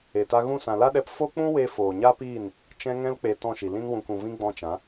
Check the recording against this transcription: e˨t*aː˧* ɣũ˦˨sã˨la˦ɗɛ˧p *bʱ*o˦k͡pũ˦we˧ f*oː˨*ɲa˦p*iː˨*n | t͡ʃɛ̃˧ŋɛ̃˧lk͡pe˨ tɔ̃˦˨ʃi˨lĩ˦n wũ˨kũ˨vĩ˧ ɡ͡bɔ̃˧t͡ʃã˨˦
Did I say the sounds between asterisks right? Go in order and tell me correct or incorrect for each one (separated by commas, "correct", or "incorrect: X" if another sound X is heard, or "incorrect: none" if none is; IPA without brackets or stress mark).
incorrect: a˧, incorrect: f, correct, incorrect: iː˦˨